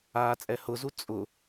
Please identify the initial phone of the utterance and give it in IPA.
aː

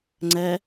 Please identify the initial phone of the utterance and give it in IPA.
ŋ͡ǀ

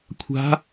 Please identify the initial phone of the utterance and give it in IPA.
kʷʰ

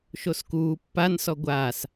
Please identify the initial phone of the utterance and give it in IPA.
ʃ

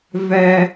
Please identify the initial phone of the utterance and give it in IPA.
v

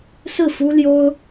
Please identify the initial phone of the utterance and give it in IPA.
s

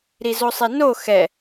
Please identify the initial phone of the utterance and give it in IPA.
ɾ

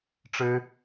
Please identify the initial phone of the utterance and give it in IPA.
ʈ͡ʂ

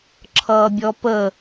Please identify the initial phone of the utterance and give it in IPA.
ǁʰ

